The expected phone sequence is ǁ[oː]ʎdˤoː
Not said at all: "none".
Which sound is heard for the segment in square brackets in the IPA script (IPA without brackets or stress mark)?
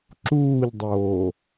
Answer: uː